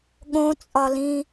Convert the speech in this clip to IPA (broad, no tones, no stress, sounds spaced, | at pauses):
ɠ õ t͡sʼ ɒ l ĩ